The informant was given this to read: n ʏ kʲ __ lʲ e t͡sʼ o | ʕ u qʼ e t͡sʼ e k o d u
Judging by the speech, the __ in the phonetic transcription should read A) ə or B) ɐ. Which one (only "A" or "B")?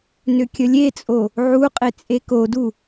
A